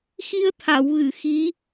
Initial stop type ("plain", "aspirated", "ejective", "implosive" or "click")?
aspirated